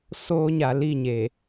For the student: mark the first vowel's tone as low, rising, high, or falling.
high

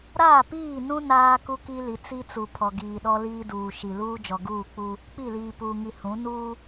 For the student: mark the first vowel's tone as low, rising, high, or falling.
falling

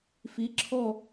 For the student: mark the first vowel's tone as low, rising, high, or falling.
rising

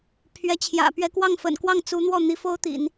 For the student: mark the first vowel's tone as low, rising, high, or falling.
rising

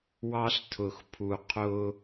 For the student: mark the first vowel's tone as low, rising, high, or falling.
high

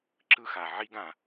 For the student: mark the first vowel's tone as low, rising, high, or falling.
falling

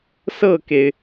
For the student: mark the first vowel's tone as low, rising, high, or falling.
falling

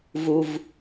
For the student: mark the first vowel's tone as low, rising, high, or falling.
low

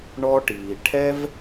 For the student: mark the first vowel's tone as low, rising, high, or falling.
high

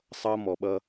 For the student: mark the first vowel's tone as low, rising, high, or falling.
high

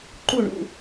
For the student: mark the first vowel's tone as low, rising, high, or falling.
falling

